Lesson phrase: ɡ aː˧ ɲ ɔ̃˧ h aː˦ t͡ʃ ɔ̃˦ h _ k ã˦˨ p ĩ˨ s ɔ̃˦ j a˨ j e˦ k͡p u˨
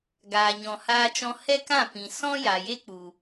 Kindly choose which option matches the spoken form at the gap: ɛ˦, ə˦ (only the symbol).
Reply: ɛ˦